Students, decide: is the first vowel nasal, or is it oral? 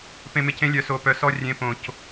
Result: nasal